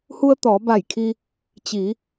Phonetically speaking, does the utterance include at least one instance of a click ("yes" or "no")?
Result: no